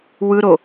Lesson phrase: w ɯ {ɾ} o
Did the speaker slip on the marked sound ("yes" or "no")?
no